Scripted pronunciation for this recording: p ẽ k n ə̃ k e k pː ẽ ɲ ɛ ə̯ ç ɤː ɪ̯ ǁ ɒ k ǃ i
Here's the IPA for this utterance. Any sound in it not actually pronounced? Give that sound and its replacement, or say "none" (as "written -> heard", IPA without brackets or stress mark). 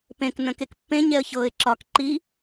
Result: none